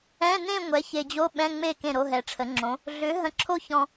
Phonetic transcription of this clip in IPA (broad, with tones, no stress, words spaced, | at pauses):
ɛ̃˧˥˧nẽ˥˧ ŋʷɛ˩˥ çe˨d͡ʑo˧˥˧ ɓɛ̃˧˥˧ŋ͡me˥˩ kẽ˥˩ɾo˧˥˧ɦɛ˩˥ʈ͡ʂʰə˩˥ ŋ͡ǁõ˩˥ | ɮʏ˩˥ɦə̃˨ǁʰo˥˧çɔ̃˨